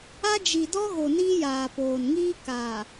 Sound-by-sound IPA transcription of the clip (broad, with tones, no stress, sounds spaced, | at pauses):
a˦ d͡ʒ i˨ d ɔ˦ ɣ o˨ n iː˦ j aː˨ p oː˨ n ŋ iː˦ k aː˨